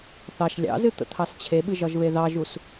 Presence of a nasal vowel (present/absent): absent